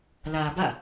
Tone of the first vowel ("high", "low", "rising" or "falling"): low